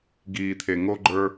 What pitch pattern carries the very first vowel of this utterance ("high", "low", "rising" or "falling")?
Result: low